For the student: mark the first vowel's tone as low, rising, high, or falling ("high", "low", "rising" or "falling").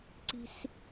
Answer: high